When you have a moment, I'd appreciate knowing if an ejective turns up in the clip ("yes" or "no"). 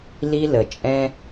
yes